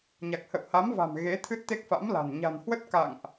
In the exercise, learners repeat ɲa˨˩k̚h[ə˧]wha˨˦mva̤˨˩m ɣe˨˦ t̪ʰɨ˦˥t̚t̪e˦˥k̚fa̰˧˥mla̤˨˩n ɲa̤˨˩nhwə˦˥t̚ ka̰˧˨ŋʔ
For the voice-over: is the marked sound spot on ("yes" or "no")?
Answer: no